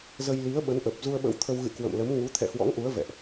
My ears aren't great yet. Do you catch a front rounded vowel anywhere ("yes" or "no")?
no